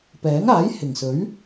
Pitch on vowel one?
rising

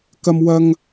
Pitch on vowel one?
high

